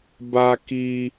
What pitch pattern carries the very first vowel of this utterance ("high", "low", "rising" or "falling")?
low